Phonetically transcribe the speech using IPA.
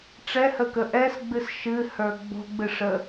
ʈ͡ʂɛhəkə ʔɛsɡ͡bɨs ʃɨhə˞ ɡ͡bo̤ɡ͡bɨʂə

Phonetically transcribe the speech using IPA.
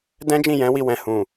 dɛ̃˦d͡ʒĩ˦˨jɛ̃˨˦wi˧ wɛ̃˧ hũ˨

